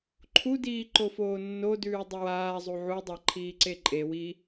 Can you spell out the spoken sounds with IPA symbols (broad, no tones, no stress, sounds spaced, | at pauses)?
ǃʰ u d iː ǃ o f oː nː o d ʉː dˤ ə w aː zˤ u ʕ u dˤ a ǃʰ iː ǀ e ǃʼ e w i